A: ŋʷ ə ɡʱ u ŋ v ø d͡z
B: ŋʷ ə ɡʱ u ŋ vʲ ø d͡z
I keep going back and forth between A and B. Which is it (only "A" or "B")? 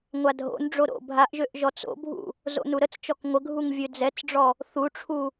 B